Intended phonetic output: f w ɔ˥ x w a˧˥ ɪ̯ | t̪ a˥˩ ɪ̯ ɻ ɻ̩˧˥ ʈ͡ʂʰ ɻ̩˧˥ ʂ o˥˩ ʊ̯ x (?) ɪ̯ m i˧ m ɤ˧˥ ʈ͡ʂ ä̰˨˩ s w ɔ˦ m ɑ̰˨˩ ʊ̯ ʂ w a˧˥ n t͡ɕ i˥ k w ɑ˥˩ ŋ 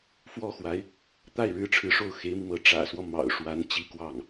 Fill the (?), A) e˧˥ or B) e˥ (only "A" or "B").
A